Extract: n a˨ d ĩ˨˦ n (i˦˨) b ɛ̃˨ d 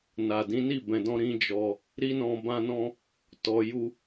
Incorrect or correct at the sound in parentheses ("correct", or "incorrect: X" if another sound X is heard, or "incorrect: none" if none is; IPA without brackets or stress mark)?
correct